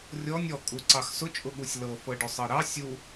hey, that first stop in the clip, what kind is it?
ejective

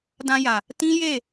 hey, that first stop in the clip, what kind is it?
plain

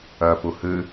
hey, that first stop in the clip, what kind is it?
plain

